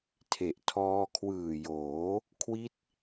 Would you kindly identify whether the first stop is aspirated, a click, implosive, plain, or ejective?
aspirated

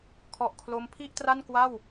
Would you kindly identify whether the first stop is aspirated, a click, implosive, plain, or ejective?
aspirated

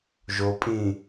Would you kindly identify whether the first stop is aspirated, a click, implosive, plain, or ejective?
ejective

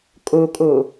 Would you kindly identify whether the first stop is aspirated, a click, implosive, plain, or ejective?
ejective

